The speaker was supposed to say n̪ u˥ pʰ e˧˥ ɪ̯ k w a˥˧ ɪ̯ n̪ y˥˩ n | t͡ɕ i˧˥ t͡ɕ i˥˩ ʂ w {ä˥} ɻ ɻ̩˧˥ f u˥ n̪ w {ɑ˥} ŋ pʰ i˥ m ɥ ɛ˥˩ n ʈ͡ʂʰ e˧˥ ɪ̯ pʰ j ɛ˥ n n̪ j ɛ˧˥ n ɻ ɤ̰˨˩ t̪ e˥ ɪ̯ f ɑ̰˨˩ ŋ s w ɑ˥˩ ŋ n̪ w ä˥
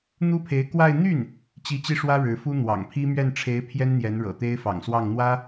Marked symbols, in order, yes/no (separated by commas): yes, no